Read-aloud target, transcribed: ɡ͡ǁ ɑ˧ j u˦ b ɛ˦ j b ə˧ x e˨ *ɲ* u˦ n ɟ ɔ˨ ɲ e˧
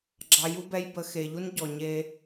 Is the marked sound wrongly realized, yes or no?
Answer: yes